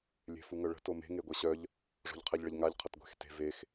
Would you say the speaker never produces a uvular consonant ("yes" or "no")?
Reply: no